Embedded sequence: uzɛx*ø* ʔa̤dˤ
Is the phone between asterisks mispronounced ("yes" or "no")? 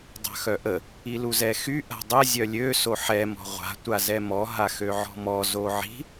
yes